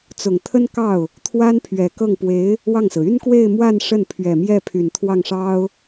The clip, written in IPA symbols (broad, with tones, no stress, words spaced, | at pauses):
t͡sʊ˨˩ŋt̪ʰə˥n kɑ˥˩ʊ̯ | t̪ʰwa˥npʰɥɛ˨˩kɤ˥˩ŋ pwe˧˥ɪ̯ | wɑ˥˩ŋsɹ̩˩ y˥nkwe˥˧ɪ̯mwa˥˧n ʂə˥˩npʰɥɛ˨˩mjɛ˥˩pʰy˨˩n t̪ʰwɑ˥˩ŋʂɑ˥ʊ̯